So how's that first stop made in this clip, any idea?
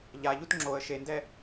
plain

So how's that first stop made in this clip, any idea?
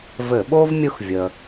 implosive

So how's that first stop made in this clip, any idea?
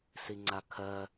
click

